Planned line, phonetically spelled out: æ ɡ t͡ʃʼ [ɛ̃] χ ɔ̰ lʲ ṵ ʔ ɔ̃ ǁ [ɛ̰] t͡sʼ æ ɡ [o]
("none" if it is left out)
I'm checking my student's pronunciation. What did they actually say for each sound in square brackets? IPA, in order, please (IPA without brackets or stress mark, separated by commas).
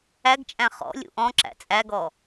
æ̃, æ̰, ɔ